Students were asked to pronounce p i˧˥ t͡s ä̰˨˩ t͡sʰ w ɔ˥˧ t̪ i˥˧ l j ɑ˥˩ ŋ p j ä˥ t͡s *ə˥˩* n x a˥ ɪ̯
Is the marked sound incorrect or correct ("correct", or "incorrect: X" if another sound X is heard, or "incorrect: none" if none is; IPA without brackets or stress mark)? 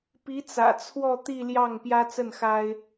correct